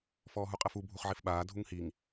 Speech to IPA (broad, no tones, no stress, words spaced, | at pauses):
fɔːɦuqʼɛfu bʱuχʕifɓaː dʱuŋhiŋ